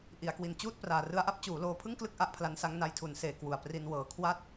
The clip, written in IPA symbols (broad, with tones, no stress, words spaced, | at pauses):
ʔi˩˦a̯kwi˨˩n t͡ɕuː˥˩t̚ praː˨˩ rɯ˦˥a̯ʔa˥˩p̚ t͡ɕuː˩˦loː˧pʰɯ˥˩ŋklɯ˥˩k̚ ʔa˥˩ʔpʰla˦˥nsa˦˥ŋ na˧jtʰu˩˦nseː˨˩ kwu˨˩a̯pri˧n wɤː˨˩kʰwa˥˩t̚